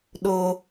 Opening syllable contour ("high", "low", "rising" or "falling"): low